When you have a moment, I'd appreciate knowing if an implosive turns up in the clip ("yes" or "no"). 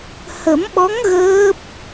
yes